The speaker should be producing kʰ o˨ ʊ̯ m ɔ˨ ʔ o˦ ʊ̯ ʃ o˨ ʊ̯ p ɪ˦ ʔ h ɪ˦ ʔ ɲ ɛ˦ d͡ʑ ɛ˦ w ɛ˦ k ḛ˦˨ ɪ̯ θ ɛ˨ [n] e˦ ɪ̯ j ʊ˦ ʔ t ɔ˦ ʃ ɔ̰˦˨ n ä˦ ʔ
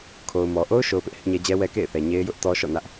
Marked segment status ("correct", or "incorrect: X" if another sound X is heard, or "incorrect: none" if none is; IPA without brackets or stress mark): incorrect: ɲ